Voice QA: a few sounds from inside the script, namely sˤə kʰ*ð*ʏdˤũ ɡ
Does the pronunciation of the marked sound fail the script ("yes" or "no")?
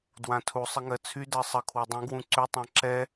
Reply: yes